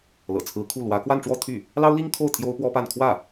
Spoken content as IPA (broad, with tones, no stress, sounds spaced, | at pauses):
l ɤ̰˨˩ t͡sʰ ɹ̩˧˥ kʰ u˥˩ l w ä˧˥ k w a˥˧ n ʈ͡ʂ w ɔ˥˧ t̪ʰ y˥˩ | l ɑ˥ ʊ̯ l i˥ ŋ kʰ o˥˩ ʊ̯ t̪ʰ j o˥ ʊ̯ p w ɔ˥ p a˥˧ n kʰ w ä˥˩